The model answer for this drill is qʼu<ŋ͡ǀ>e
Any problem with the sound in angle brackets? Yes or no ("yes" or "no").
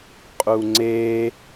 no